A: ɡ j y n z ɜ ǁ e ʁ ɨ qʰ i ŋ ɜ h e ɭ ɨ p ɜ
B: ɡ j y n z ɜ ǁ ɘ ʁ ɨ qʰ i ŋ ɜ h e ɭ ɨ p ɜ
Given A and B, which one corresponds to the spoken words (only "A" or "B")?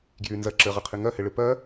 B